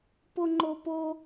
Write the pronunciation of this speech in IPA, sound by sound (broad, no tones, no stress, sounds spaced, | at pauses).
p o ŋ͡ǃ o p o